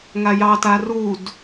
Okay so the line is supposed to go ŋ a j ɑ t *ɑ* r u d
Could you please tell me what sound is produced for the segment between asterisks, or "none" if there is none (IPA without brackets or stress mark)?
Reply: a